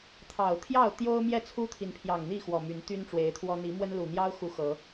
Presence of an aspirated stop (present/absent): present